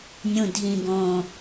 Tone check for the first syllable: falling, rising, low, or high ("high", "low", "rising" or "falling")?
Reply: low